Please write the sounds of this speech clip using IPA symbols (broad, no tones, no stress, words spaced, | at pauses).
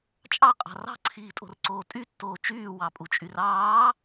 t͡ʃʼɑqʼɑ̤ rɑ̤ǀʰiːtʼo̤rǀoː tʼytːoː t͡ʃyːwɑpʼut͡ʃʼyr ɑː